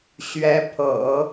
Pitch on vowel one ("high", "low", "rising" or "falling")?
rising